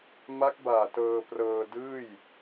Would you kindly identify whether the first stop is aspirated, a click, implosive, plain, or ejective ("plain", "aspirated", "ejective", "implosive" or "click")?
plain